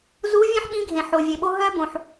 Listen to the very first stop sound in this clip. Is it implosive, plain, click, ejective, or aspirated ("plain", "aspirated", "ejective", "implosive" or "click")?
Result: implosive